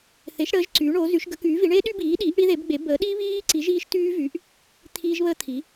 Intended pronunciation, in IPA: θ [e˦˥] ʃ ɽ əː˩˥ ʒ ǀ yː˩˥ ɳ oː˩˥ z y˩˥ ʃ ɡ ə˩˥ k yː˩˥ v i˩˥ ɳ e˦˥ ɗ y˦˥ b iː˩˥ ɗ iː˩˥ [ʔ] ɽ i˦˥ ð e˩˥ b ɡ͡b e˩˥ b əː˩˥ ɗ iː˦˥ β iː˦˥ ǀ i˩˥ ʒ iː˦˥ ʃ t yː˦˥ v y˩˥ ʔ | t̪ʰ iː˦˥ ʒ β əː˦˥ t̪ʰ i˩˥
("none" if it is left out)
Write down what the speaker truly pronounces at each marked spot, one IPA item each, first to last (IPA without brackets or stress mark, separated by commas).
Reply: e˩˥, ʔ